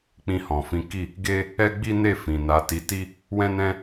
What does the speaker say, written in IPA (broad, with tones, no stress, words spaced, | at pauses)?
k͡pĩ˧ hɔ̃˨fĩ˨˦ki˦˨ | ɡe˦ | ɛ˦ɡ͡bi˦ne˦˨ fĩ˨na˨˦ti˧ ti˦ | wɛ̃˦nɛ̃˦